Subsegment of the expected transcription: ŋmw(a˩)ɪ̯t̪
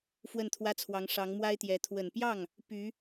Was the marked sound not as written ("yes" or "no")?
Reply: yes